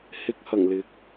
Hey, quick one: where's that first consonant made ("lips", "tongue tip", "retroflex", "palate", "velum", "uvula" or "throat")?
throat